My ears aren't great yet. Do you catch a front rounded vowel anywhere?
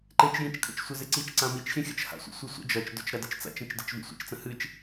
no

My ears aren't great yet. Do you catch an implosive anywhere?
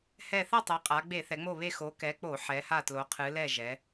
no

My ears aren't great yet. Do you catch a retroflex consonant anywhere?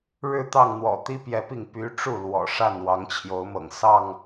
yes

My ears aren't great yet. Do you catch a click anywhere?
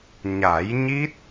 no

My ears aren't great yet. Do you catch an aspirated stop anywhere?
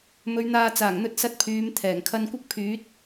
yes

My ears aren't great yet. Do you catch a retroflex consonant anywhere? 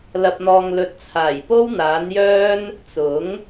no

